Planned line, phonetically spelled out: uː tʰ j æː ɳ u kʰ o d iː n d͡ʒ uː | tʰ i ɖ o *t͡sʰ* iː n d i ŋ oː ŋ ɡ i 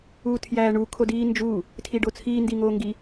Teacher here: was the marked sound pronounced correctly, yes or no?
yes